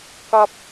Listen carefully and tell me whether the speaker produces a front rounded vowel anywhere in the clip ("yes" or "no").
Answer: no